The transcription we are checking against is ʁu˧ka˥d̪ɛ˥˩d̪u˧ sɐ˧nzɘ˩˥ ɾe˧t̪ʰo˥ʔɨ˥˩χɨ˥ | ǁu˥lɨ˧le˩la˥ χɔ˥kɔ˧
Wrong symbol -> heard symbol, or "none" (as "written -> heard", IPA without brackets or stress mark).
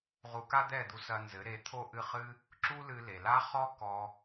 none